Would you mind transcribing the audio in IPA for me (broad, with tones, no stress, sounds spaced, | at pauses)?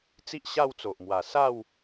t͡s i˦ ʔ ɕ a˥˧ w t͡s o˨ ʔ m w a˨˩ s a˥˧ w